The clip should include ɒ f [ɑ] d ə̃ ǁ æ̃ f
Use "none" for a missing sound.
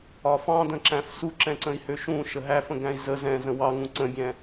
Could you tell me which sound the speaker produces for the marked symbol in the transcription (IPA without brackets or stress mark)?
ɑ̃